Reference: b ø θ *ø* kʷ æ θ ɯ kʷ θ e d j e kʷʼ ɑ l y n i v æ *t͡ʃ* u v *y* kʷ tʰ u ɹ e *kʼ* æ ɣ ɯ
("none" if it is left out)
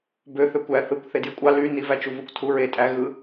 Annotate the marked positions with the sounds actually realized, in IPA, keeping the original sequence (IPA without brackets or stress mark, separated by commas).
ø, t͡ʃ, u, tʼ